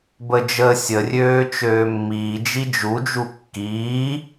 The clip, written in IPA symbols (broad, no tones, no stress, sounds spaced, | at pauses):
b ə d͡ʒ əː sʲ ə rʲ øː t͡ʃ øː mː iː d͡ʒ i d͡ʒ u d͡ʒ u kː iː